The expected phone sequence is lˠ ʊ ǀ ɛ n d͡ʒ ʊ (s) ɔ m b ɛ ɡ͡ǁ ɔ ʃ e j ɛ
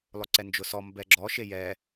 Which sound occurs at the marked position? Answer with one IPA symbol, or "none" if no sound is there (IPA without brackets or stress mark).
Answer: s